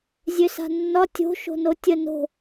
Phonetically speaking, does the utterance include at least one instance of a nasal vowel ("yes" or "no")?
no